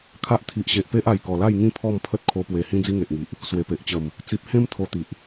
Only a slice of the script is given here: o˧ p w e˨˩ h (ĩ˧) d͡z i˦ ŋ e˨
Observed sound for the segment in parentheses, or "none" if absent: ĩ˦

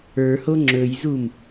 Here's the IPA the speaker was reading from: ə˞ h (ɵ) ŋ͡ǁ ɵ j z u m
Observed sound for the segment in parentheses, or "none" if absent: o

